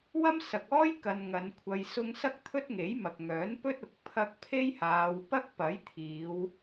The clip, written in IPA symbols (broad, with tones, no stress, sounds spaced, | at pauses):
w ɐ˥ m s ɐ˨ k̚ ɔː˥ j k ɐ˧ n ŋ ɐ˨˧ n kʷʰ ɐ˧ j s ʊ˥ ŋ s ɐ˥ k̚ t̪ʰ ɵ˥ t̚ ŋ e˨˥ j m ɐ˨ k̚ ŋ œː˨˥ n p ɵ˥ t̚ ʊ˨ k̚ pʰ ɐ˧ k̚ pʰ e˥ j h aː˨˧ w p ɐ˥ k̚ p ɐ˨˥ j t̪ʰ iː˨˧ w